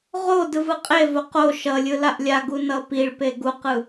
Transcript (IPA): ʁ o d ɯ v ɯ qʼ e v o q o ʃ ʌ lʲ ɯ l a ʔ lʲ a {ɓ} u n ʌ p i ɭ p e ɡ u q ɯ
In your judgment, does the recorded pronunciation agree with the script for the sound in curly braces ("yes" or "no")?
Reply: no